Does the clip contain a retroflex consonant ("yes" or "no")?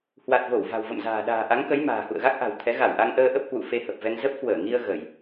no